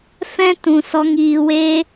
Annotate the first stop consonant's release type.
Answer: plain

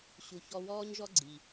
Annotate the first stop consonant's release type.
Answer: click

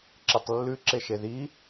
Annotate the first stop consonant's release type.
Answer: click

